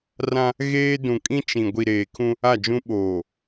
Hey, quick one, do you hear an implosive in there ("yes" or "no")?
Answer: yes